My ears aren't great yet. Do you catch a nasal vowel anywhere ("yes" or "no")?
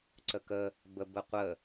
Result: no